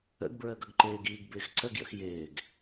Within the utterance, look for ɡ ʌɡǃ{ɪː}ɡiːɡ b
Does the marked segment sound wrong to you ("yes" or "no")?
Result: no